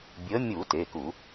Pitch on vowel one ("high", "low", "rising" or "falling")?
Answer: rising